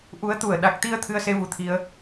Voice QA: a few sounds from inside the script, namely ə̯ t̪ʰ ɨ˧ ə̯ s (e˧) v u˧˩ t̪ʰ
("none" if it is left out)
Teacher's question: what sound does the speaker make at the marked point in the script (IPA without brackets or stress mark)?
e˧